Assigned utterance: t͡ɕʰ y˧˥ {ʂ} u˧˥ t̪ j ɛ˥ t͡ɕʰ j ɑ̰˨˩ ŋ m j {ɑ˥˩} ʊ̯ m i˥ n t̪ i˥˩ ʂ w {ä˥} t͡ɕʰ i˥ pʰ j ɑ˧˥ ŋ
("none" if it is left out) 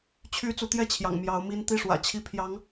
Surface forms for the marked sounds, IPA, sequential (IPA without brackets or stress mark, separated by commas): t͡s, ɑ˧˥, ä̰˨˩